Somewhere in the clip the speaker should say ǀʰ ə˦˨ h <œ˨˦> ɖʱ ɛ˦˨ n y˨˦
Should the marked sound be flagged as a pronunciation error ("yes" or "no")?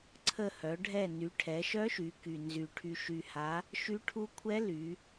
no